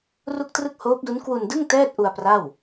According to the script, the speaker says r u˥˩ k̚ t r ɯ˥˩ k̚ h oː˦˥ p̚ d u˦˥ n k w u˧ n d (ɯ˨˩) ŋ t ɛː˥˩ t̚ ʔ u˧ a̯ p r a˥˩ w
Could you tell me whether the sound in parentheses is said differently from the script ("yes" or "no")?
yes